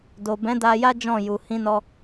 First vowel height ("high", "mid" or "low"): mid